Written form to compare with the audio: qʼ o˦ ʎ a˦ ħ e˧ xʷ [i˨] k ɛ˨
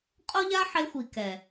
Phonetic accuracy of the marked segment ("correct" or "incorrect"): correct